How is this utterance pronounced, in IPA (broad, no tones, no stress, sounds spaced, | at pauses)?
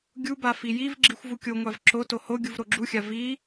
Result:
ɡʲ u b a f i j i v ɡ͡ǁ i xʷ v u kʲ o ŋʷ a v ǁ o t o h o ɡʲ u v ɾ o ɡ͡ǁ u xʲ a v i